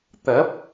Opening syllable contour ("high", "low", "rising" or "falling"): rising